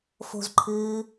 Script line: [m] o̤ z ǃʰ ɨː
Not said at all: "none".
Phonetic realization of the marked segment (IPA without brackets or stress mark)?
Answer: f